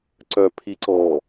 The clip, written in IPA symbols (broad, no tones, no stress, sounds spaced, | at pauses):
ǀ œ pʰ i ǀ ɔ